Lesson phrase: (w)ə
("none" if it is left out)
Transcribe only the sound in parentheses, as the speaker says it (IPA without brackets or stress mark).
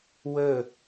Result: w